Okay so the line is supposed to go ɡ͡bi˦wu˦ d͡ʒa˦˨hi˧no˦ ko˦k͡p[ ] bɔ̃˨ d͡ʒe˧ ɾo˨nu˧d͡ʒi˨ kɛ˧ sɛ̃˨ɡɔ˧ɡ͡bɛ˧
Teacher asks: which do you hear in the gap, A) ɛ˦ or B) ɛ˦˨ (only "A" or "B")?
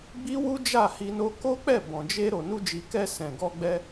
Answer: B